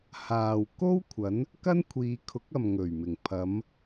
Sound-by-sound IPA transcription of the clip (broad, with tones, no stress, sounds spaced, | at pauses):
h aː˨ w k o˥ w kʷʰ ɐ˨˥ n | k ɐ˥ n kʷʰ iː˨˧ kʰ ʊ˨˥ k̚ ɐ˨ m ŋ ɵ˨˩ ɥ m ɪ˨˩ ŋ pʰ ɐ˨˧ m